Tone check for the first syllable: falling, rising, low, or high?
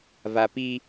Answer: low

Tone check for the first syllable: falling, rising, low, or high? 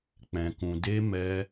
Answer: low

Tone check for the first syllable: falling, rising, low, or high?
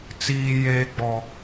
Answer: high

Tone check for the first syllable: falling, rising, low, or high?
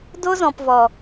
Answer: high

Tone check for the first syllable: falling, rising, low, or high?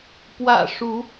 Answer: low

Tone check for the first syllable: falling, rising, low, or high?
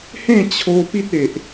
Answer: falling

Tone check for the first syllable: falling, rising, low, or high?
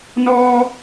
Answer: high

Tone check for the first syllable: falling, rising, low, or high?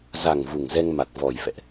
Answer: low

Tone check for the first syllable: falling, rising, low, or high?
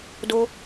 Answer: high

